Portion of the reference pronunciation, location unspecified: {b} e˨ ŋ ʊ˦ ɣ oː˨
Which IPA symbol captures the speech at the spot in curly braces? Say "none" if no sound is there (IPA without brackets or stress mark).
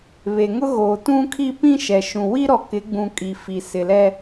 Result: β